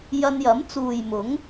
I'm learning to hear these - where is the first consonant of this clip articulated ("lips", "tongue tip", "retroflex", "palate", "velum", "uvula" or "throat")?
palate